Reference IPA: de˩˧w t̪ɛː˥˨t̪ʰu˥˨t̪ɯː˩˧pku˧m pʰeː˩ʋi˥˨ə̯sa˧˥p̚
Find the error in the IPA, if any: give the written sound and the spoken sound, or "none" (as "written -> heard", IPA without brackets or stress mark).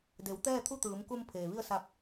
p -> m